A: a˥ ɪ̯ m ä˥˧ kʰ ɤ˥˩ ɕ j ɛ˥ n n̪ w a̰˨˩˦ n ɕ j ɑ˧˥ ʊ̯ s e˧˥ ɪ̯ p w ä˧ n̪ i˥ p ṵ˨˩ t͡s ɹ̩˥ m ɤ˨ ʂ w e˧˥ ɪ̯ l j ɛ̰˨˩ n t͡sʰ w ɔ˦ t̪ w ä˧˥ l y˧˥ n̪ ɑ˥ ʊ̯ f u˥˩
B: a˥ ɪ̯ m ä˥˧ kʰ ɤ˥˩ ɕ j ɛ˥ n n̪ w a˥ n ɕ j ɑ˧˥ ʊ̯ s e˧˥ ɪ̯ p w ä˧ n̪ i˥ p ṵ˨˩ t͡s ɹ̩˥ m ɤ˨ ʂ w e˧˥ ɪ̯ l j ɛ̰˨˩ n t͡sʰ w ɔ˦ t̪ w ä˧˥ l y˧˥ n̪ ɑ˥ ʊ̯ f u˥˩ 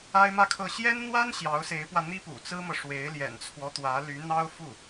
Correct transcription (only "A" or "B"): B